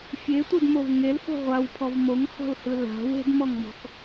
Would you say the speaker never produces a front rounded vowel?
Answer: yes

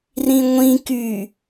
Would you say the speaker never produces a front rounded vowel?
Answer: no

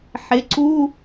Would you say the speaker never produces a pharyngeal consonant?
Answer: no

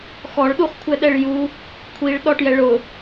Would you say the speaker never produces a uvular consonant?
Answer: no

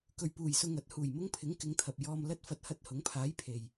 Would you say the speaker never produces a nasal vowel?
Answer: yes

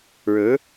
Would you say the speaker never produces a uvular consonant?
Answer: yes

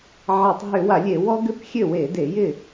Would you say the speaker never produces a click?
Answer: yes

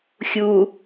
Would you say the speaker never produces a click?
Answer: yes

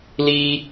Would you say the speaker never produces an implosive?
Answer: yes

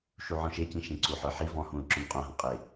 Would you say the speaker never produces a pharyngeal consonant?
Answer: no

